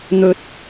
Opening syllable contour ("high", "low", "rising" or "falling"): high